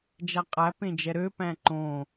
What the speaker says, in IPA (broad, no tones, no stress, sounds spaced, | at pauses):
d͡ʒ æ qʼ æ p ẽ d͡ʒ ɛ ɾ ø p æ̃ ǃ õ